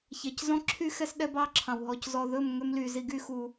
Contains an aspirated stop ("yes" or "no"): yes